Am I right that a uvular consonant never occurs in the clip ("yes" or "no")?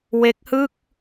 yes